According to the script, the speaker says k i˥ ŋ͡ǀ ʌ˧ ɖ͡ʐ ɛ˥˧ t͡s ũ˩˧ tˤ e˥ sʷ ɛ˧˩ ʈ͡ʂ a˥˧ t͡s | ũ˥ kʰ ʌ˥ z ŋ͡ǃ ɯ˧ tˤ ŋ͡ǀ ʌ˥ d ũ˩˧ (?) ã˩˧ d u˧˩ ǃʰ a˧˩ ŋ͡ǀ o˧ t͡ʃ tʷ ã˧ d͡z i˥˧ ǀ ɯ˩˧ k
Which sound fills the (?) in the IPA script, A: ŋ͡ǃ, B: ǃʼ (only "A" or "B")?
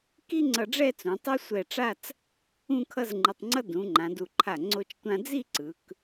A